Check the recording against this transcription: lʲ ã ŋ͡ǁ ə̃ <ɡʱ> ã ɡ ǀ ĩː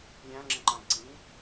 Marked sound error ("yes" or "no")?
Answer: yes